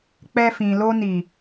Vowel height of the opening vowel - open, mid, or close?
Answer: mid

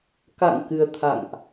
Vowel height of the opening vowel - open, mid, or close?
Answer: open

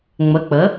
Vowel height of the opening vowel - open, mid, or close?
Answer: mid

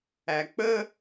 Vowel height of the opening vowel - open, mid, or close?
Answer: open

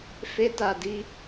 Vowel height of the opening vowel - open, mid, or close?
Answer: mid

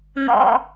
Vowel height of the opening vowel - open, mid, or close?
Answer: mid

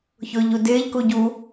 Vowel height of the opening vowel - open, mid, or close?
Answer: close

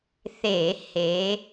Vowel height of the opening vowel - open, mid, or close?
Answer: mid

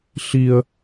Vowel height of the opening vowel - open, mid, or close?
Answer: close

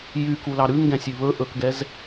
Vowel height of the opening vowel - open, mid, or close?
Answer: close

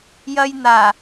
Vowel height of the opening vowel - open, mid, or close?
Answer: open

